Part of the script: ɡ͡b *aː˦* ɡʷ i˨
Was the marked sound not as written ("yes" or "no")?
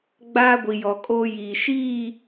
no